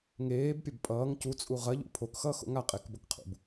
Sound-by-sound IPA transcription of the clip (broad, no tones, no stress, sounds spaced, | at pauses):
ŋ eː b pʲ ɐ b pʼ ʌː ŋ c u t͡sʼ u ʁ ɐ ʎ ṵ pʰ o k x ʌː x o̰ ŋ a qʼ e k b ʌ k qʰ ṵ b